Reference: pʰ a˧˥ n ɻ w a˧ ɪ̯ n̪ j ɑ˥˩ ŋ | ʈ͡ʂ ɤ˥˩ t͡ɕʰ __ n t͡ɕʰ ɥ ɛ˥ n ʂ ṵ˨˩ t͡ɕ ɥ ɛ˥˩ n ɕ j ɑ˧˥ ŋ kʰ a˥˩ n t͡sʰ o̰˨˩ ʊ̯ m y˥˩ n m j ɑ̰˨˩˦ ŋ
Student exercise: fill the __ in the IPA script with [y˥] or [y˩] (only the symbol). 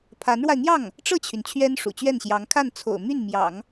y˩